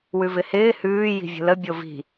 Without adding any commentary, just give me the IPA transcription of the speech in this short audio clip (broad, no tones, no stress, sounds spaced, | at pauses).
w ʉ v ɪ h ɪː h ʉː j i̤ vʲ ə̤ l ə bʲ o v i̤